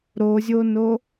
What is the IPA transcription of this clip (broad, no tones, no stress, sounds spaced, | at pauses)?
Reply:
ɾ o zʲ o n o